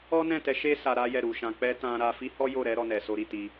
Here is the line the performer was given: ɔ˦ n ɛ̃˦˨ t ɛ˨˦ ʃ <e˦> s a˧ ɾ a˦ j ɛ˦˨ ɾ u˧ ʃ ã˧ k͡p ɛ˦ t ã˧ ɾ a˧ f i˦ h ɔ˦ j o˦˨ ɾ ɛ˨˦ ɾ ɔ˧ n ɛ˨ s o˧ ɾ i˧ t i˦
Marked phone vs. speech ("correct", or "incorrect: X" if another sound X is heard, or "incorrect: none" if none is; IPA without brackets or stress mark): correct